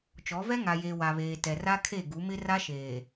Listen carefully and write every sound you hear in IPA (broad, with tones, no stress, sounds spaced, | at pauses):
t͡ʃ ɔ˨˦ v ɛ˦ ŋ a˨ j eː˨ w a˨ β eː˨ t ɛ˨ r a˦ kʰ e˦˨ ɡ u˨˦ m ɪ˦ r a˦ ʃ eː˨